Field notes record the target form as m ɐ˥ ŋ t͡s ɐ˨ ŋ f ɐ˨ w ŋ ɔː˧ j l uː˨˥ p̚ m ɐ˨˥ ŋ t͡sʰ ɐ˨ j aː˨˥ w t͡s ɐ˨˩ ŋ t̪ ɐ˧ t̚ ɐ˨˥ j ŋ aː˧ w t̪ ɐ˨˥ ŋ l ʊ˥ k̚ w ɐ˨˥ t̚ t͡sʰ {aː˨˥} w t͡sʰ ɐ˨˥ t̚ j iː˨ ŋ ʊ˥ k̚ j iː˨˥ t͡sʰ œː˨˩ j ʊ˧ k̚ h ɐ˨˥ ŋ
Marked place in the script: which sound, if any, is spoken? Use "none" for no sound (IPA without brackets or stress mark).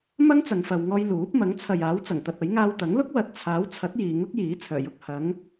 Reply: aː˨˥